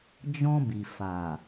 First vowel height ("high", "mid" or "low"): mid